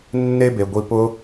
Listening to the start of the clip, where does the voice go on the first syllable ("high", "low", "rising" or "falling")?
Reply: high